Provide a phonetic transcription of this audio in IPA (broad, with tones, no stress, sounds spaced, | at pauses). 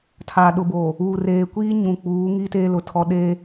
tʰ a˨ ɗ ʊ˨ b o˨ | uː˨ r eː˨ kʷ iː˦ ɲ ũ˨ k͡p uː˨˦ ŋ i˦ t eː˦ l ʊ˨ tʰ ɔ˦ ɗ e˦